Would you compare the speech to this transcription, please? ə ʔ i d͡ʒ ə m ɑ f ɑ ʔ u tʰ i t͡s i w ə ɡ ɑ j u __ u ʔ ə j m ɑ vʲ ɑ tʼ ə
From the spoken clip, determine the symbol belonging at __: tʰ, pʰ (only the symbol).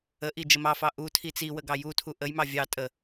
tʰ